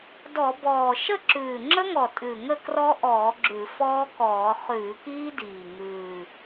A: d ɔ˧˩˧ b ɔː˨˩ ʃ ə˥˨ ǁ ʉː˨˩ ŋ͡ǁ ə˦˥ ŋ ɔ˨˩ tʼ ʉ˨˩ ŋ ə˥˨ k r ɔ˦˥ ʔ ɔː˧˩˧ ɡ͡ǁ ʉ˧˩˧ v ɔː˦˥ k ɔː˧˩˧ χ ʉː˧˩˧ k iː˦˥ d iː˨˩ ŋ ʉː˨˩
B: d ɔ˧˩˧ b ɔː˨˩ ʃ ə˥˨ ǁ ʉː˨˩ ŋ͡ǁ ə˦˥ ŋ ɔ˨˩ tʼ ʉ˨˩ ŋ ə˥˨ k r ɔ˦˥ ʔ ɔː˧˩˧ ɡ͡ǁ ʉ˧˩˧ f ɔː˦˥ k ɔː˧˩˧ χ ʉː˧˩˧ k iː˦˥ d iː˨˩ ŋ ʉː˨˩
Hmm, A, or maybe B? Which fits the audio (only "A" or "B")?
B